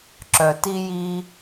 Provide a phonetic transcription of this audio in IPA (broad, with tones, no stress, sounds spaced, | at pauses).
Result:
ǁ œ˨ t i˦ j i˦